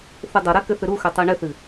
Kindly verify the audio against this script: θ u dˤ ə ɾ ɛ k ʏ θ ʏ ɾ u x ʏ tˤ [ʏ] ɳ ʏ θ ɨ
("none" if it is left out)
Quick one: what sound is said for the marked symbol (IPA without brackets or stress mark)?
u